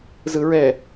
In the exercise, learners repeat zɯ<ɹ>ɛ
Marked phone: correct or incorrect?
correct